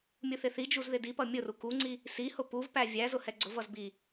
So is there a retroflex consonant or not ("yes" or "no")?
no